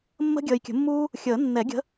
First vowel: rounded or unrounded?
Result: unrounded